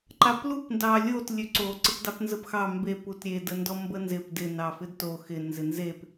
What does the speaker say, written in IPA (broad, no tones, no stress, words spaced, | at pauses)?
ǃaplup ndɑlʲot lʲøǀo ǀɪpdɑpnzəpxɑ mbe putɾʲe dəndɔmbənzɪp dɪ nɑfɪdto xɪ nzɪnzep